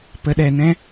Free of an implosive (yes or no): no